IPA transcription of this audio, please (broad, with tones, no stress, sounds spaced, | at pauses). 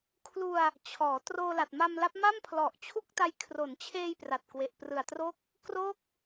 kʰ l u˧ a̯ | t͡ɕʰ ɔː˩˦ t r oː˧ l a˨˩ t̚ m a˧ m l a˦˥ p̚ m a˥˩ m pʰ l ɔ˨˩ ʔ t͡ɕʰ u˥˩ k̚ t a˦˥ j kʰ r o˩˦ n t͡ɕʰ eː˧ j p r a˨˩ t̚ k w e˨˩ ʔ p r ɯ˨˩ a̯ t r o˥˩ k̚ | k r o˥˩ k̚